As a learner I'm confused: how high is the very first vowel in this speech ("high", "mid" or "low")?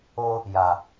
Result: mid